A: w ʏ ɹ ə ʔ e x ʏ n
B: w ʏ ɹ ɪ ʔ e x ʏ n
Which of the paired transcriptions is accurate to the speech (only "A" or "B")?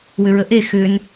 A